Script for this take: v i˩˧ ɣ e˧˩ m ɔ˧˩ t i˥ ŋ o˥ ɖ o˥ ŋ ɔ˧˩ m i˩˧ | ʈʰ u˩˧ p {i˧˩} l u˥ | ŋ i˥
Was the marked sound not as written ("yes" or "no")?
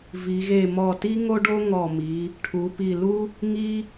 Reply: no